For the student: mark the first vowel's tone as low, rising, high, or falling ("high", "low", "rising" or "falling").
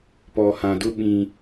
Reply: low